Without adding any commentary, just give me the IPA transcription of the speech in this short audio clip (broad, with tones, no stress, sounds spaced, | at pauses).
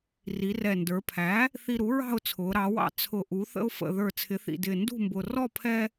r i˩˧ r ɛ˨˩ n d ə˞˩˧ pʰ æ˩˥ | θ i˧ ɾ u˩˥ ɹ ɑ̤˥˨ ʊ̯ t͡sʰ ʊː˩˧ ɾ ɑ˩˧ w ɑ̰˧ t͡sʰ ʊ˨˩ ʔ u˩˧ θ ə̰˧ ʊ̯ f ə̰˨˩ ð ə˞˨˩ t͡sʰ ɪ˩˧ θ ḭ˨˩ d ɪː˨˩ n d ṳ˥˨ m b ʊ˨˩ r ɔ˥˨ pʰ ɛ˧